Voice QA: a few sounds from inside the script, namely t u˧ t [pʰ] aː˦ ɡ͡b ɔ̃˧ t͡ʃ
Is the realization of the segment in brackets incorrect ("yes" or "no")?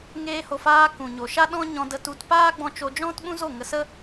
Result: yes